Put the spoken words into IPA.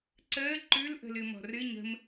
ǀ əː ǃ ʉ l ʔ ə̤ l ɨ m ɔ̤ r ɨ ɲ ə̤ m

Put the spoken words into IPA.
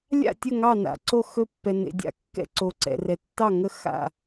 lʲ a̰˥˨ tʲ ə˥˨ ŋ ɑ˥˨ n a̰˨ ǀ o˥˨ x ɵ˥˨ pː ɛ˨ n ḛ˨ dʲ a̰˥˨ kː ɛ̰˥˨ ǀ o˨ ǀ ɛ̰˨ r ɛ˨ tː ɑ˥˨ ŋ ə˥˨ x a̰˥˨

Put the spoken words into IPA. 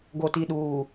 ɡ o˨ t i˨ ɗ uː˨

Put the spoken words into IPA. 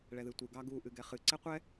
ɭ ɛ ð ɨ tʷ ɨ ɡ ɑ ɡ u ʔ ɨ ɡ ɛ χ ɨ ǀ ɛ qʷ ɛ

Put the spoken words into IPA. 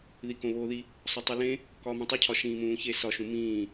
ð i k õ β o ð i | sˤ o tˤ i l ẽ | k ɒː m õ tˤ i cʰ ɒ ʃ ĩː m ũː ç e s ɒ ʃ ũ m ĩː

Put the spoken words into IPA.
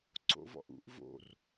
ǀ o̰ v ɔ̰ ʔ ṵ ʔ v o̰ r

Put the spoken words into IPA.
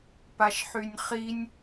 p a ʃ ħ y nʲ χ i nʲ

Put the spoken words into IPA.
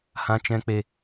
h ã˨ t͡ʃ ɛ̃˨ k͡p e˨

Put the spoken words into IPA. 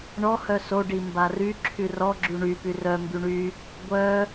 ɳ ɔ h œ s o ɖ i m b a r y ǁʰ y r ɔ ɡ͡ǁ y ɳ y p y r œ m b y ɳ y | ɡʷ œ

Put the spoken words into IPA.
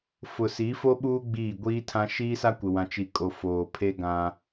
f ʊ˨ s i˨˦ f o˦ ɓ uː˦ ɡ͡b iː˦˨ ɡʷ iː˦ tʰ ã˦ ʃ iː˦ s a˦ kʷ ɪ˨ w ã˨ t͡ʃ i˨ kʼ o˨ f oː˨ pʰ e˦ ɡ ã˦

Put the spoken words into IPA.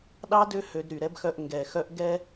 ɗ ɑ˦ d ø˧ h ø˨ d ɾ y˨ ɾ ɛ˦ b x œ˧ ʔ ŋ ɡ ɛ˨ x œ˧ ʔ ɡ ɛ˧

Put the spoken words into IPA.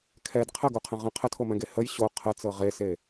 kʰ ɛ d qʰ ə ɡ o qʰ ə̃ ʁ ə̃ qʰ ə tʰ o m ɛ̃ ɡ e h ə j ɕ o qʰ ə t͡s ɤ ʁ e s e

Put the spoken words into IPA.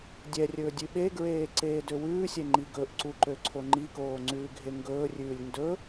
dʲ ɛ rʲ ɵː dʲ ʉ ɓ e ɡ ɹ eː ǀ eː d ø w ʉː sʲ ɛ ŋ͡ǃ i ɡ ɵ ʔ ǀ u ǃ ø ǀʰ o ŋ͡ǃ i k oː ŋ͡ǀ ʉː ɡʱ e ŋ ɡ ɵː rʲ ʉː lʲ n d ɵ

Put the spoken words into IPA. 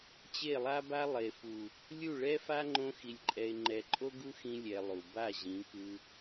t͡ɕ e˦˨ lˠ a˦ b a˦ lˠ e˨ f u˨ | lʲ u˦˨ ɭ ɛ˦ f a˦ ŋ͡ǃ õ˦ x i˧ lʲ ǃʼ ɛ˧ ɪ̯ ŋ͡ǃ ɛ˧ ǃʼ o˦ ɡ u˦ x ĩ˧ lʲ ɛ˧ lˠ u˨ b a˦˨ ʑ ĩ˨˦ k ɯ˧

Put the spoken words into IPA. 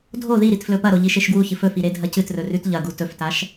dʱ o ð i ɾ i t f l ɵ p ɐ ɾ o ʎ i ʃ e ʃ ɡ w u ç ɨ f ɵ f i ɾ e dʱ ɐ c ɨ t r ɵ r ʉ t ʎ ɐ ɡ u t ɵ f t a ʃ

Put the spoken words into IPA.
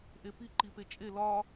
ʔ e p i ǃ i p e t͡ʃʼ e l ɒ

